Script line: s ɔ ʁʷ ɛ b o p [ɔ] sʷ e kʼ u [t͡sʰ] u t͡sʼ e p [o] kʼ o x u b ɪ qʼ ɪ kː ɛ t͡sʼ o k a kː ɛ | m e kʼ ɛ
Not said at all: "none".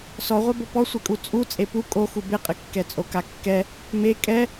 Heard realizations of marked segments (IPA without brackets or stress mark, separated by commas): ɔ, t͡sʼ, u